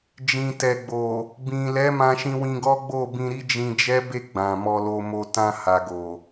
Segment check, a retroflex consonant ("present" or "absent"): absent